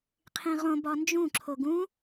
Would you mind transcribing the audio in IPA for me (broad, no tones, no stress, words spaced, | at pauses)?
qʰĩʁõ bɒnd͡ʒũ ǁʰoɡũ